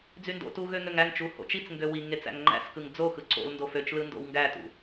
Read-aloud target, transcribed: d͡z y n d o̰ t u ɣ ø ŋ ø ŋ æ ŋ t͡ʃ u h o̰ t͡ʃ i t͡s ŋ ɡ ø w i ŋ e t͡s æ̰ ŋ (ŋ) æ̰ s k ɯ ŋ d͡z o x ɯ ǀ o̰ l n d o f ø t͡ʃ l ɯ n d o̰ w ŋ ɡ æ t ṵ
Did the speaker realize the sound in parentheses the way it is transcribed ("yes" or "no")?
no